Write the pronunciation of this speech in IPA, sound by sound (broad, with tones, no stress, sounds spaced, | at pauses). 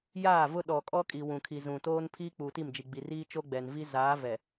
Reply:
j aː˦˨ v ʊ˦ ɗ ɔ˨ kʼ ɔ˦ kʼ i˨ w ũ˨ kʰ i˨ z ũ˨ t oː˦ n pʰ iː˦ k͡p uː˨ t i˦˨ m d͡ʒ i˨ ɡ͡b i˨ r iː˦ t͡ʃ o˦ ɡ͡b ɛ˨ n v i˦ z aː˨˦ v ɛ˨